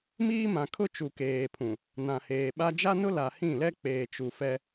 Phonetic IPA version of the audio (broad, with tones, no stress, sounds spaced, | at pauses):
m iː˦ m ã˨ kʰ ʊ˦ t͡ʃ u˨ k eː˨ pʰ ũ˨ | n ã˨ h eː˨ ɓ a˦ d͡ʒ a˦ n ʊ˦ l a˨ h ĩ˦˨ l ɛ˦ k͡p eː˨ t͡ʃ u˨ f ɛ˦